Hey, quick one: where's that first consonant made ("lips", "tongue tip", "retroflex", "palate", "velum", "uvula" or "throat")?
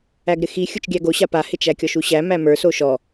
velum